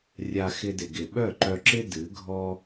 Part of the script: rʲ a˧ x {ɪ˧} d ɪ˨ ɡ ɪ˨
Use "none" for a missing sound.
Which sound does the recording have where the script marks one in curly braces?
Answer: ɪ˧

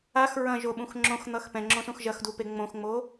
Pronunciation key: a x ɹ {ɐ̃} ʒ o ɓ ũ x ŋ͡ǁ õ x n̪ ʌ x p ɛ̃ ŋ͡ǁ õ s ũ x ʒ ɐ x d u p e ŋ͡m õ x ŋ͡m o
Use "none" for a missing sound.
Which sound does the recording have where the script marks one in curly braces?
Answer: ɐ̃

